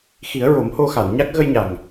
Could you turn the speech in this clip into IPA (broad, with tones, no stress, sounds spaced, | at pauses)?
x i˨˩˦ ə̯ ɹ o˨˩˦ m h o˧ x a˨˩˨ n ɲ a˦˥ k̚ ɣ ə˧ j ɲ a˨˩ ŋ